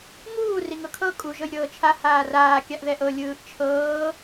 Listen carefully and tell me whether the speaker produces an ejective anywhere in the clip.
yes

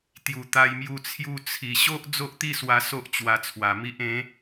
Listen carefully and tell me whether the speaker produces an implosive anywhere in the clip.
no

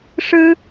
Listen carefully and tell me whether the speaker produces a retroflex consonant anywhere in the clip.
yes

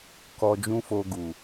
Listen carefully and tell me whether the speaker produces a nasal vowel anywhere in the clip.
yes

